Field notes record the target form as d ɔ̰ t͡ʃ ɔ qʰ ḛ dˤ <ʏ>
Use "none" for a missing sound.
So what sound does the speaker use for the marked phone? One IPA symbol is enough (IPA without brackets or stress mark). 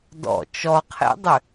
ʏ